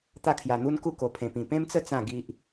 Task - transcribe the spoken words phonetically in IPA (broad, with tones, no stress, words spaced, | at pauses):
t̪a˥˧kʰja˧n̪u˦nku˥˧ ko˧pʰẽ˧pĩ˧ pẽ˦mt͡sə˦ t͡sã˥˧ɡi˦ʔ